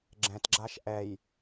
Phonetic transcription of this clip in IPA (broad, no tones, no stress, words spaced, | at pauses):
ɡ͡ǁɛ̃tɡ͡ǁaʃ ʔɛj